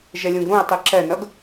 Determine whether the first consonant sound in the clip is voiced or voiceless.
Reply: voiced